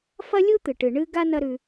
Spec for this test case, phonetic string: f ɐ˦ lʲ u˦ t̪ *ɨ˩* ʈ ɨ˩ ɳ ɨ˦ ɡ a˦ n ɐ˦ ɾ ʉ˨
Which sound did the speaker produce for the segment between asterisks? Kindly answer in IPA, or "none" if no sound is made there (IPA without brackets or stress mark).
ɨ˩